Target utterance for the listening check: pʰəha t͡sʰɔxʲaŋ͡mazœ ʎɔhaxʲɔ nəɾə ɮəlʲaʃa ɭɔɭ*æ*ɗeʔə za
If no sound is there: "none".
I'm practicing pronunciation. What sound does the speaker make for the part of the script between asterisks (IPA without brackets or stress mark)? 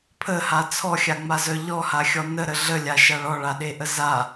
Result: a